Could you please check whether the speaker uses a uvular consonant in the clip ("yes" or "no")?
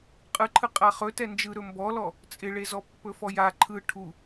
yes